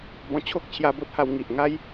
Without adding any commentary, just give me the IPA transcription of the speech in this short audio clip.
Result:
bɔ̃˧ t͡ɕʰo˦k̚t͡ɕʰja˧bo˦t̚ha˧w ŋi˨ʔŋa˦j

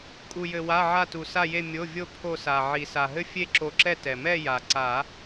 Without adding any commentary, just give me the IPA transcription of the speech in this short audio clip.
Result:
kʼu˩jɘ˩wa˩˧˩ ʕa˧˩tu˩ sa˧˩je˧˩ mʲo˩˧˩vʲo˧˩ pʰo˧˩sa˩ ʕi˩sa˩ɦɘ˥˨ fʲe˥˨ǁo˧˩ǁɛ˥˨ tɛ˩mɛ˥˨ ja˩ ǀa˨˩˦

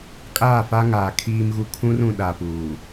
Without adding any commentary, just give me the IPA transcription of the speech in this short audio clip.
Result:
kʼaː˦˨fa˦ŋaː˨ kʰiː˦mɣu˦ kʰũ˦rũ˨ ɗa˨puː˨

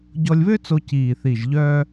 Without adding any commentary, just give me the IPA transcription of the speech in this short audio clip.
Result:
ɟɔ˧lʲβø˥t͡so˧ ciː˨˩θi˨˩ʒ ʎœː˧

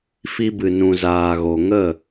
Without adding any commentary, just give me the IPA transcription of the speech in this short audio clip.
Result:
fi˧bɨ˨nũ˨ zaː˨ɣo˨ ŋə˦˨

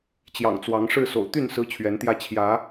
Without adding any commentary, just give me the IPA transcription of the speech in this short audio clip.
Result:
t͡ɕjɑ̰˨˩ŋt͡swɑ˨˦ŋ ʂɻ̩˥˨so̰˨˩ʊ̯ t̪y˥˨n sɹ̩˦t͡ɕʰɥɛ˨˦nt̪jä˦ t͡ɕʰjä˨˦

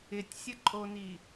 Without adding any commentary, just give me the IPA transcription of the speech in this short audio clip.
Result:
ɪtʲsʲəǃʼoni

